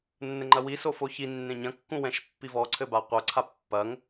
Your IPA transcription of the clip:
nː ɘ ŋ͡ǃ ɐ w i s o f o ç i nː ẽ ɲ ɐ̃ kː ũ w ɛ̃ ʃ pː i v ɔ ǀʰ ɘ b a qʷ ɐ ǀʰ a pː ɐ ŋ

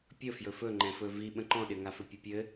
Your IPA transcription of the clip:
pʲ ə f j ɵ f ɵ ŋ͡ǃ ɛ̃ f ɵ v i ɓ ə̃ ǃ ɔ̃ ɗ ɪ ŋ a f ɵ pʲ ɘ pʲ ɘ

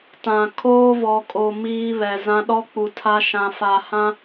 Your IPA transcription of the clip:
t ã˨ kʰ oː˦ v ɔ˨ kʼ o˨ m iː˦ β ɛ˨ z ã˦ ɗ ɔ˦ k͡p u˨ tʰ a˦ ʃ ã˨ f a˨ h ã˦

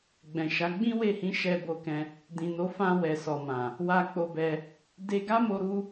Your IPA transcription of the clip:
ɡ͡b ɛ̃˨ ʃ a˨˦ ɡ͡b ĩ˦ w e˦˨ h ĩ˨˦ ʃ ɛ˧ b o˧ k ɛ̃˧ | d ĩ˨ n o˨˦ f ã˧ w ɛ˨ s ɔ˨ m ã˨ | w a˧ k͡p o˧ b ɛ˧ | d e˧ ɡ a˦ m o˧ ɾ u˦

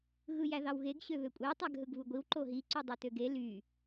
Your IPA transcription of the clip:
ɣ ɯ j æ ð ɑ w ɣ e ɡ ɕ ø β ø kʷʼ e tˤ æ ɡ ɦ ɯ ɡ β u ɡʷ i w ǃ o ɦ i ǀ y dˤ i t ø ɡ e l y

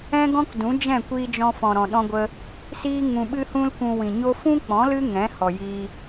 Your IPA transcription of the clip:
ɛ̃˦ ɡ ɔ̃˦ k d ũ˨˦ d͡ʒ ɛ̃˦˨ kʷ iː˧ d͡ʒ ɔ̃˧ f ɔ̃˨ ɾ ɔ̃˨ ɗ ɔ̃˧ ɡʷ ə˧ | s iː˦ ŋ ũ˧ ɓ ɨ˦ h ũ˦ l kʷ ũ˧ w ĩ˨ ɲ o˦ f ũ˦ k͡p ɔ̃˨˦ l ɨ˦ ŋ ɛ̃˨˦ h ɔ˨ j iː˧

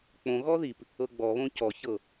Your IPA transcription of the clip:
k͡p õ ɣ ɔ ð i p | ɤ ɡ͡b ɔ β õ c ɔ ç ɤ

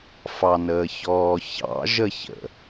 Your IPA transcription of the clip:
f ɑ n əː ç ɔː ç ɑ̰ ʒ ə ç ə̰

